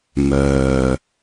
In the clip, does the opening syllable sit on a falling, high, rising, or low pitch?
low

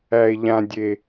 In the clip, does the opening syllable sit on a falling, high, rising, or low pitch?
low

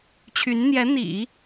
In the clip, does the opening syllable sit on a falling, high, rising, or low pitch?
rising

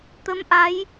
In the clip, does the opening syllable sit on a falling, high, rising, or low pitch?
rising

